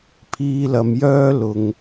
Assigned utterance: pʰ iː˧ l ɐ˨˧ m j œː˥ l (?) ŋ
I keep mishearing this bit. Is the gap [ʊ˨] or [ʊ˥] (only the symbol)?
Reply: ʊ˨